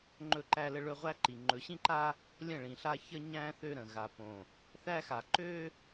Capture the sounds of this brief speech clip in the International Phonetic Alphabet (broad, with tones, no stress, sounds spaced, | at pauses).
ŋ͡ǃ ɵ˦˨ ǃ æ˦ l ə˦ ɭ ɵ˦ ʁʷ æ˦ ǃ i˨ ŋ͡ǃ ɵ˨ ɕ ĩ˦ ǃ a˦ | lʲ ə̃˦˨ ɭ ĩ˨ ɬ a˦ ç ə˦ ɲ æ̃˦ θ ø˦ ɾ ə̃˨ ɣ a˨ p õ˨ | θ æ˦ x a˨ ǃ ø˦